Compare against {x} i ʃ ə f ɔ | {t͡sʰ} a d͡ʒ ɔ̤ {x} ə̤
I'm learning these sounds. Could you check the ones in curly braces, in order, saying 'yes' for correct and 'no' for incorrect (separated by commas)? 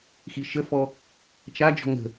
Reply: yes, no, no